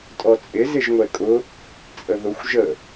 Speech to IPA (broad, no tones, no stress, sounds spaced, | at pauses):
tʼ ɔ t͡sʼ ɪ z ɪ ʒ ŋʷ ɛ kʼ ʊ | t͡sʼ ə ð ʊ xʷ ʒ ə